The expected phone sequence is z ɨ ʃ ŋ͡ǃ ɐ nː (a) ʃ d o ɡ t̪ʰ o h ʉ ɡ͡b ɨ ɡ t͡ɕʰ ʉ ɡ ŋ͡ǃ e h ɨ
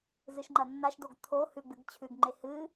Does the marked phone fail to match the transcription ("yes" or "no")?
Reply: no